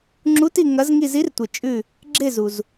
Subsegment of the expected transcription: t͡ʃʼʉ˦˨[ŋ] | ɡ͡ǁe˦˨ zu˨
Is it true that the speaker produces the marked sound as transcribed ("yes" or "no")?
no